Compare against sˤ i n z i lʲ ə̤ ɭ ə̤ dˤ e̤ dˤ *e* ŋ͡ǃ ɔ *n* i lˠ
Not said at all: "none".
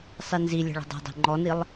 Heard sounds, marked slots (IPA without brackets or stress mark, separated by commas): e̤, n